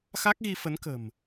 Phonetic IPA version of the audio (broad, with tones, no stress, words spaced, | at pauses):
xa˦˥k̚ɣi˧fə˨˦nkə̤˨˩m